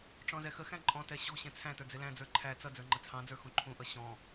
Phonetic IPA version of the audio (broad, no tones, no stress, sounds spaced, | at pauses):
ʈ͡ʂ ɔ̃ z ɛ x ə x æ̃ ǃʼ ɔ̃ t ɛ ɕ ɔ̤ ɕ ɛ̃ t͡sʰ æ̃ t ə˞ d͡z ɪ l æ̃ d͡z ə˞ ǃʰ æ t͡s ʌ d͡z ə˞ ŋ͡ǃ ə t͡sʰ ɑ̃ d͡z ə˞ x ũ ǃʰ ũ ʔ ʌ ɕ ɔ̃